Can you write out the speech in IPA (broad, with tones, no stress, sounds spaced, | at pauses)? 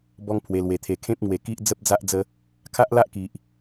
b ɔ˦ ŋ pʰ w e˧ l w e˧ t̪ʰ e˧ kʰ ẽ˦ p̚ ŋ w e˧ k i˦ ʔ d͡z ə˦ p̚ d͡z a˦ ʔ d͡z ə˧ | kʰ a˦ ʔ l a˦ ʔ k i˨ ʔ